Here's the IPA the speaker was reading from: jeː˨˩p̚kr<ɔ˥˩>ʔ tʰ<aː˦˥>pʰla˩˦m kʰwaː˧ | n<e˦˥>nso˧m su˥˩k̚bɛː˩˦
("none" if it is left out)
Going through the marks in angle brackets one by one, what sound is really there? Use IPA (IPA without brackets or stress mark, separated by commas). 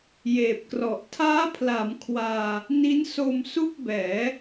ɔ˨˩, aː˦˥, i˦˥